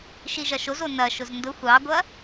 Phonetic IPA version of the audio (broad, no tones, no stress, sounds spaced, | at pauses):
ʃ i ʒ ɐ ʃ o z o n ɐ ʃ ʊ z n d ʊ xʷ ɑ ɡʷ ɐ